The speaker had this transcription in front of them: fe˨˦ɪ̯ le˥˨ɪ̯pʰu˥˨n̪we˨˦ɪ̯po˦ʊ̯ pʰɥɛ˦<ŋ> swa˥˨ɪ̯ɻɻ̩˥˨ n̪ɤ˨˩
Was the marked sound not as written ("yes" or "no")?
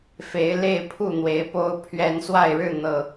yes